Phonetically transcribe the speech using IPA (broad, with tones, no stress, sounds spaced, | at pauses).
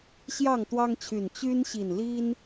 ɕ j ɑ˥˨ ŋ t̪ w ɑ˦ ŋ t͡ɕʰ y˨˩ n t͡ɕ y˦ n ɕ i˨˩ n l i˦ n